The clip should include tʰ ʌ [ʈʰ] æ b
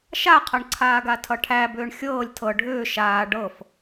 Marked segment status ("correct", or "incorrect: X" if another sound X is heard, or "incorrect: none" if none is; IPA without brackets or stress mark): correct